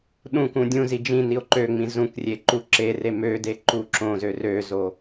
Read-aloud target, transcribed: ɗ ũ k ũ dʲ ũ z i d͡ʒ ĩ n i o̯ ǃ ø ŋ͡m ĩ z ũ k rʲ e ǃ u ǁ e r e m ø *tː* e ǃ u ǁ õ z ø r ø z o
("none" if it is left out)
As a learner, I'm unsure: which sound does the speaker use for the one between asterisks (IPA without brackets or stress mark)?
d